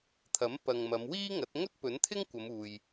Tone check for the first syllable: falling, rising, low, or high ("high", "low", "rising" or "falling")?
rising